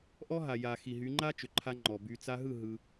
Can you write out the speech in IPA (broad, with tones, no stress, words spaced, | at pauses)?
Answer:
ʔɔ˦ɦa˨ ja˨ xi˨ɦy˨˦ ŋ͡ǃa˦t͡ʃʏ˨ǃʰa˧ ŋ͡ǃɔ˨by˧ t͡sa˧ɦɯ˦˨ ɦɯ˧